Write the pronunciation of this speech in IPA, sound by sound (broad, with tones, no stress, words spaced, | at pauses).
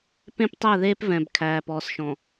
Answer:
pẽ˦ptˤæ˦˨ðeː˦p vɛ̃˨bkʰæː˨ pɔː˨sʃɔ̃˨